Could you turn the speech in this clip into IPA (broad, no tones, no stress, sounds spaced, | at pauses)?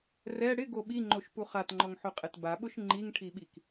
r ɛ ɽ ɪ ɡ o ɓ i ŋ͡ǃ o ʃ p u χ a t ŋ͡ǃ ɔ ŋ ħ ʊ qʼ ɛ t b a ɓ ʊ ʃ ŋ͡ǃ i ŋ ʈʰ i ɓ i k